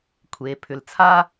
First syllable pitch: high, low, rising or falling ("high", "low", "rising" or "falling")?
low